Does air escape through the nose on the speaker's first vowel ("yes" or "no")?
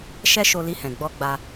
no